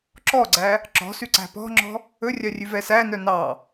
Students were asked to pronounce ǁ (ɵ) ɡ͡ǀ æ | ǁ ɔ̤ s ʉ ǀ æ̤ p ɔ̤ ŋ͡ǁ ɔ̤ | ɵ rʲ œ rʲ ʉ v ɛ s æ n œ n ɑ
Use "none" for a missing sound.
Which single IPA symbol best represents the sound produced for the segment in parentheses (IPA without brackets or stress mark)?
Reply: ɔ